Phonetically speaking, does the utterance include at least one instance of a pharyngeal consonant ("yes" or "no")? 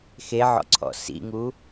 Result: yes